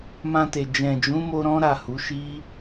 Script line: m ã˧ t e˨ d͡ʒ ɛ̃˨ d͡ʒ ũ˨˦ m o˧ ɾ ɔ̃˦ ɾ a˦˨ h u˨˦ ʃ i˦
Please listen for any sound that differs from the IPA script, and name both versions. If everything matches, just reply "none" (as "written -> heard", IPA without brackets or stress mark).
none